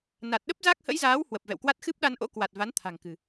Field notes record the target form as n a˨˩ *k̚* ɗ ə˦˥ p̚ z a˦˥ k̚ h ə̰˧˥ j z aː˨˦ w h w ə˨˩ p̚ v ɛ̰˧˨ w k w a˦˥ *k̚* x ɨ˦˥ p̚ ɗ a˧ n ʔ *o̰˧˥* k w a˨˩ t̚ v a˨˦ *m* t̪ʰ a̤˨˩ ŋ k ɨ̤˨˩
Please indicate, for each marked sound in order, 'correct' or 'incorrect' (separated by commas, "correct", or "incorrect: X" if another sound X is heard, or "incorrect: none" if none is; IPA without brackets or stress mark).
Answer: incorrect: t̚, incorrect: t̚, correct, incorrect: n